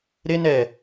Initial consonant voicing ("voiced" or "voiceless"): voiced